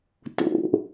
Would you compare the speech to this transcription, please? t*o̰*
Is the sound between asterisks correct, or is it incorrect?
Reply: correct